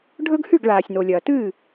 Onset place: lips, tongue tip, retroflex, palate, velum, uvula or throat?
retroflex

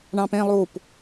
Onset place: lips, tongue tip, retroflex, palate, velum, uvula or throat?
retroflex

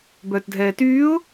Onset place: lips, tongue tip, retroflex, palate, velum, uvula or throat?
lips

